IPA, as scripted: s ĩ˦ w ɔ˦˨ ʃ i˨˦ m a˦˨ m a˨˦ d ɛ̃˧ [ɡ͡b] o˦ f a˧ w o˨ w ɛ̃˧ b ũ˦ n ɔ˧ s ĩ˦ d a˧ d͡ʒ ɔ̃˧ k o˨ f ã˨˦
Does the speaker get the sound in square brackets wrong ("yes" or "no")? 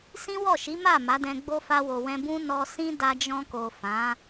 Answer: no